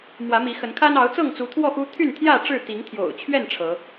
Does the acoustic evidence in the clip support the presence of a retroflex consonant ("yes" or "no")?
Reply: yes